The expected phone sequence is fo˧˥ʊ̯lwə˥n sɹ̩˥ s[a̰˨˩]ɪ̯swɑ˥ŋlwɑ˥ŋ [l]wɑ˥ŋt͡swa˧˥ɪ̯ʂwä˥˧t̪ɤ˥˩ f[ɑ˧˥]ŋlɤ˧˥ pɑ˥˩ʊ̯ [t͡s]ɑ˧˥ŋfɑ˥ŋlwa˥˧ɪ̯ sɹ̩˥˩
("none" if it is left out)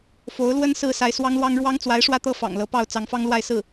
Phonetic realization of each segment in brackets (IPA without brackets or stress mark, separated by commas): a˧˥, ɻ, ɑ̰˨˩, t͡s